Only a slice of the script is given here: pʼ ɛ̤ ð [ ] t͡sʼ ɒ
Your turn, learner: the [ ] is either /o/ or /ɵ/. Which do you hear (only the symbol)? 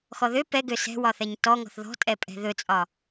ɵ